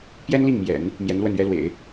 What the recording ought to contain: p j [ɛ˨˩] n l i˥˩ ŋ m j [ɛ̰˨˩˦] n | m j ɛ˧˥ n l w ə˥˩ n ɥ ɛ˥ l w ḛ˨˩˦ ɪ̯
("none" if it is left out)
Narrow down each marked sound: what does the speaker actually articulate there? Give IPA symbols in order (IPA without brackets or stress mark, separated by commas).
ɛ˥, ɛ̰˨˩˦